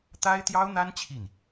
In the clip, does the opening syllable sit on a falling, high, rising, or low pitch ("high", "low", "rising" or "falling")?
high